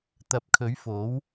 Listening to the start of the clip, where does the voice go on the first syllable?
rising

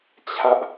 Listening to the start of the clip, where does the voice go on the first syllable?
high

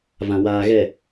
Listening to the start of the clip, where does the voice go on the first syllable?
low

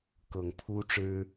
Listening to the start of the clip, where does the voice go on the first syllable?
low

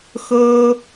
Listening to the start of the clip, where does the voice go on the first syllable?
high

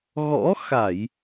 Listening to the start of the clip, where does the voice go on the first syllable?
rising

